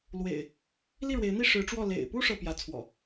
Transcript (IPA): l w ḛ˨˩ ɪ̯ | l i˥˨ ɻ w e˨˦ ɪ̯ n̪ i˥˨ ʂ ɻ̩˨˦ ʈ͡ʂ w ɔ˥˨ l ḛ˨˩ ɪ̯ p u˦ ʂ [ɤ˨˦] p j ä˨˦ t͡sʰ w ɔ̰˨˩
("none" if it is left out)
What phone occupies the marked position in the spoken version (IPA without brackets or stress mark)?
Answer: ɤ˥˨